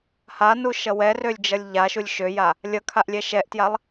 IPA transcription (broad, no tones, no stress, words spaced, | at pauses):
hanuʃʌ wɛrølʲd͡ʒʌlʲ ʎaʃulʲ ʃøja | lʲʌkʰaʔlʲɛ ʃɛʔtjalˠ